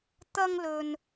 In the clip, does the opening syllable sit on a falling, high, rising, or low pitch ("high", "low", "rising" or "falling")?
high